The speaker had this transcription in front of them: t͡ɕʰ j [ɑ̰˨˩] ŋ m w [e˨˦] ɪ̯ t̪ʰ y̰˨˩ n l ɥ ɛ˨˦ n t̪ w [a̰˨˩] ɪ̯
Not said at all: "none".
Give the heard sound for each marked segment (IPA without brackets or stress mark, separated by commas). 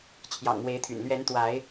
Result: ɑ̰˨˩, e˨˦, a˨˦